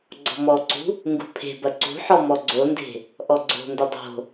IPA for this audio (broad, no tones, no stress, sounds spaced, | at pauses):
ɡ͡ǀ ɔ̤ m ɔ ǀ ṳ | ŋ ɡ ṳ pʰ e̤ b ɐ ǀ ṳ ħ ɔ m ɔ ɡ͡ǀ o n d e̤ | ʔ ɔ ɡ͡ǀ o̤ n d ə dˤ o̤